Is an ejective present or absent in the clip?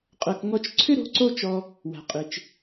present